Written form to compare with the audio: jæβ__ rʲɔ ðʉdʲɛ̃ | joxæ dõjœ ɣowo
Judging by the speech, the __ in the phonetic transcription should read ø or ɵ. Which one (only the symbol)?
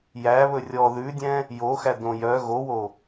ɵ